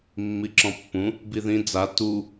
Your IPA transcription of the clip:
mː i ǁ ɔ̃ pː ũ | b i ð ĩ d͡z a t u

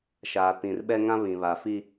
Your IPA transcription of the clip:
ʃ aː˨ t ĩ˨ r ɓ ɛ˦ ŋ ã˦ β ĩ˨ β aː˨ f i˦

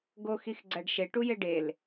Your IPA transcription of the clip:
ɡ o x i x ɡ͡ǀ æ ɖ ʃ e ʈ u j e ɖ e l

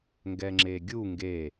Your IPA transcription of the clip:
ŋ ɡ ɛ ŋ͡ǁ e ɡʲ u ŋ ɡ e

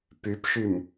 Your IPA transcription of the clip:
p ʉ p ʃ ʉ m

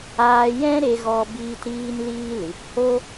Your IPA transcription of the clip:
aː˧ j ɛ̃˦ ɾ e˧ ɣ ɔ˧ b iː˦ t ɾ iː˦ n l iː˦ l ɨ˨˦ p h o˦

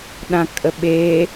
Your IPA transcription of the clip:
ɗ ã kʼ ə ɓ e

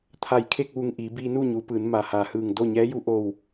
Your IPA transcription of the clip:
t̪ʰ a˧˩ j kʰ e˥˨ k̚ ʋ u˧˩ ŋ ʔ iː˩˧ b iː˧ n uː˥˨ ɲ uː˩˧ p ɯː˩˧ n m a˩ h aː˩ h ɯː˧˩ ŋ d o˥˨ ɲ ɛː˧˥ j u˧˥ ʔ o˥˨ w

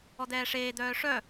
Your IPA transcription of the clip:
ɔ d̪ ɛː ʂ eː d̪ œː ʂ œ

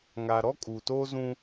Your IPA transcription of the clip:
ŋ a˨ ɾ ɔ˦ kʼ uː˨ t oː˦ z ũ˦

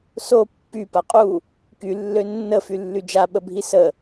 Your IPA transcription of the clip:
s o pː y p a qʼ u | k y lː ø nː ə f y lː y d͡ʒ a ɓ ə bʱ i s ə

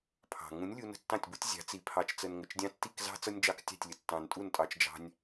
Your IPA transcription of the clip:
pʰ ɑ̤˨ ŋ ũ˨˦ nʲ lʲ u˧ n ə̤˦ tː ɑ̃˦˨ tʲ b u˦ tʲ zʲ ɑ̤˨˦ t͡s i˨ pʰ ɑ˨ t͡ʃ t͡s ə˨ n ŋ ə˨ t͡ʃ dʲ ɑ̃˦ tː i˦˨ k z ɑ̤˦ t͡s ʌ˦ nʲ d͡ʒ ɑ˦ k tʲ ɑ̤˦˨ tʲ lʲ ə˨ tː ɑ̃˨ n tʼ u˦˨ n tʼ ɑ˧ t͡ʃ d͡ʒ ɑ̤˦ nʲ

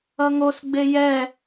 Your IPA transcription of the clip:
ʌ ŋ o s ɡ͡b e j ɛ

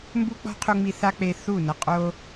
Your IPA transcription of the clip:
m b u˦ k͡p ɔ̤˦ qʰ u˧ ŋ͡m i˧ θ a˦ k͡p e˧ θ u˦˨ n ɤ˧ qʼ o˦

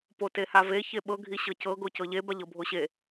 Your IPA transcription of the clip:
p o t e h a v e ç e ɓ ɤ ɡʱ i ɕ ɤ c ɤ ɡ o c ɤ ʎ e b a ʎ ɤ bʱ o ɕ e

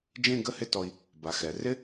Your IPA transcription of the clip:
d͡ʒ ẽ˥˧ ɡ ə˥˧ h ɪ˥˧ t ɔ˧ i̯ | b a˩˧ x ɛ˩˧ r ɪ˥

